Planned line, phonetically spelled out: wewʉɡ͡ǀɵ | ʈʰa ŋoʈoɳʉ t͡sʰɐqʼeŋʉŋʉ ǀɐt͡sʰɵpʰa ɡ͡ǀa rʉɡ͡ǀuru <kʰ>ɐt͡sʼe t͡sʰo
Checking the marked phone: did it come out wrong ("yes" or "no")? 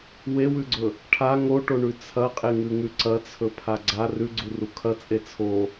no